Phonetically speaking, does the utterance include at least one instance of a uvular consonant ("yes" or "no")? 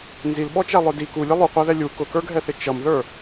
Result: yes